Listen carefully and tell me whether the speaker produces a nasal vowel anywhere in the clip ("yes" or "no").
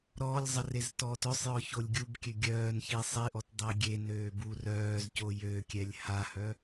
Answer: no